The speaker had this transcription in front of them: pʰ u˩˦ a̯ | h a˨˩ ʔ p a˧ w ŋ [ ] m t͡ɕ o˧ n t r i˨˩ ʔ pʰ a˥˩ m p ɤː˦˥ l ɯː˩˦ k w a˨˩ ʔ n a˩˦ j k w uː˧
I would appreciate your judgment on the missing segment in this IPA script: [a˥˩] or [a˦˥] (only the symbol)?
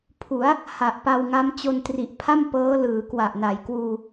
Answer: a˦˥